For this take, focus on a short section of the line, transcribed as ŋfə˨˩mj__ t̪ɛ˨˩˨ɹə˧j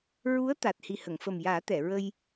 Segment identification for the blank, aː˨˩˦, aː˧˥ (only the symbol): aː˨˩˦